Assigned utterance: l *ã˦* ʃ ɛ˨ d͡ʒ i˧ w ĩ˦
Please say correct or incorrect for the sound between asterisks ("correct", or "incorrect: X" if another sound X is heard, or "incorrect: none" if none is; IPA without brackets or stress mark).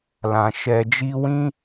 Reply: incorrect: ã˨